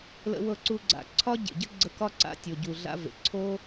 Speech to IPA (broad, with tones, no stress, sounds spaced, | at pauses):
l ə̰˧ w ɤ˧ ǀ u˧ ɡ͡ǀ a̰˨ ǀʰ ɒ˦ ɟ ḛ˨ ɟ ə˦ ɡ͡ǀ ə˧ k ɒ˦ ǀ a̰˧ tʲ o˨ ɟ u˨ ɮ a̰˦ v ḛ˨ ǀʰ o˦